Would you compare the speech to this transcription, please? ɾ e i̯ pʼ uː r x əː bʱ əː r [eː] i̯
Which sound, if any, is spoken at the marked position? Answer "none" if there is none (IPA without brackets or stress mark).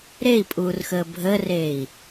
eː